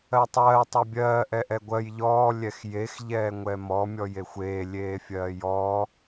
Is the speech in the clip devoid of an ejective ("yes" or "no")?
yes